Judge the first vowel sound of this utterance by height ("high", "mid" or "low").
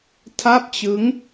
low